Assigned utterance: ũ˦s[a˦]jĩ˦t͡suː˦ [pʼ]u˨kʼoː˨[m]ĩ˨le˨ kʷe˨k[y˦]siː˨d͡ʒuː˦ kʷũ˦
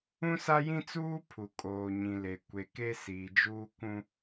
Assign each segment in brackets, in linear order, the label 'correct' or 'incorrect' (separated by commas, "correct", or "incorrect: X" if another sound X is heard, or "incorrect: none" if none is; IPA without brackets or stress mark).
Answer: correct, incorrect: pʰ, incorrect: ɲ, incorrect: e˦